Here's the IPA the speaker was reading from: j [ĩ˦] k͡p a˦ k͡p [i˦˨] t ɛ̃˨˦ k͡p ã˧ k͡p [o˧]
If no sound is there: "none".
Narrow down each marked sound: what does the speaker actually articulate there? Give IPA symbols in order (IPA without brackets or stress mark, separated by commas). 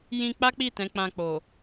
ĩ˧, i˦˨, o˨